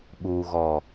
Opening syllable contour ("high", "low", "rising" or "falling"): low